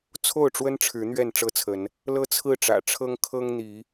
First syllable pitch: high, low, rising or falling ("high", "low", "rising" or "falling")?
falling